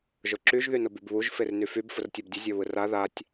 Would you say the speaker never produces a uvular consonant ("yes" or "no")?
yes